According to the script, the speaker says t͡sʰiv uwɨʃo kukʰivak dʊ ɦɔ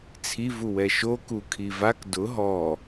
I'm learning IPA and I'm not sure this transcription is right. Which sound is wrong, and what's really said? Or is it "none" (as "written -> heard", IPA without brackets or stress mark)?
ɨ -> ɛ